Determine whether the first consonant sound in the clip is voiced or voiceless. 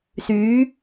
voiceless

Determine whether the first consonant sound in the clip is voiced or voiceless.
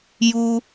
voiced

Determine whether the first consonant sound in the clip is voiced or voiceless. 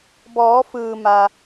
voiced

